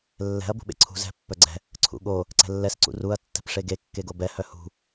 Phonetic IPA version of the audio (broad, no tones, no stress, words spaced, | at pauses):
lːɛ̤ɐ̯ bṳɓḛǀʰṳ zɛ̤ pːœɡ͡ǀɛ̤ | ǀʰṵɠo | ǀɛ̤lːɛs ǀṵruɐ̯ tːɛ̤pʂeɡe kːeɡobɛ hœhṳ